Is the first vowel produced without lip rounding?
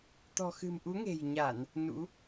no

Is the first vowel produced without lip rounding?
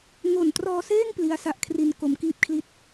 no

